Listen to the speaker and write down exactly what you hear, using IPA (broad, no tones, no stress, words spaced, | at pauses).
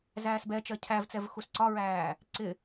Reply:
zæːsbɛt͡ʃɜ cʰævt͡sɛv xusǀɒɹæː | ǀɪ